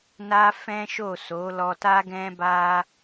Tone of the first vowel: high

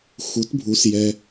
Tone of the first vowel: rising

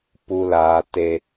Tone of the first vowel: low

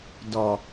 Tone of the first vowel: low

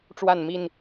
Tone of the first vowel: falling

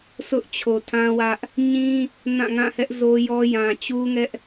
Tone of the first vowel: high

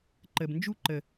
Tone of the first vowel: low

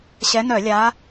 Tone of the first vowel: rising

